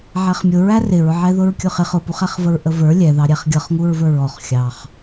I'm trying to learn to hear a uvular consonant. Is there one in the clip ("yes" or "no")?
yes